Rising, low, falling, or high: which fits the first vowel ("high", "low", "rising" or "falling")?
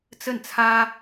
falling